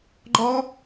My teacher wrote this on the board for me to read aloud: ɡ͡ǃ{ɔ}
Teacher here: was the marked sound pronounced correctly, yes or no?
yes